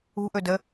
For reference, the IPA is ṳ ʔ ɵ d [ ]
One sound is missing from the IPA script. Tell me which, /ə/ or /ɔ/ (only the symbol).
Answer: ə